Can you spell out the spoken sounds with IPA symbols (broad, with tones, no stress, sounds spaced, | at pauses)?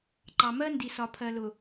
ǃ ɑ˨ m ɜ˦ n d i˨ s ɒ˨ pʰ ɜ˨ l ʊ˨